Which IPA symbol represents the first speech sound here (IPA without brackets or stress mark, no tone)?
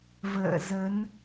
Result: v